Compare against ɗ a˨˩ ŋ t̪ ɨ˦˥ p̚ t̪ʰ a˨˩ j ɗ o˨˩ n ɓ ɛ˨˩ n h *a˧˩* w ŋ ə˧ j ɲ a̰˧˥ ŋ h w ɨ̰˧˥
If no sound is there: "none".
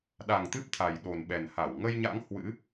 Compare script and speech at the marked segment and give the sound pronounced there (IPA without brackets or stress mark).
a˧˩